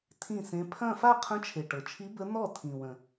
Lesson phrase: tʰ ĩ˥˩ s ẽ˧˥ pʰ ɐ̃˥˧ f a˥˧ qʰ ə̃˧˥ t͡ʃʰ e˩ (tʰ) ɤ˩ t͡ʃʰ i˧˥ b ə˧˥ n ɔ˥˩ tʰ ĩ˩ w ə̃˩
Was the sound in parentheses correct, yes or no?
no